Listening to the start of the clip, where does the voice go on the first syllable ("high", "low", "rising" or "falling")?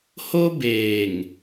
high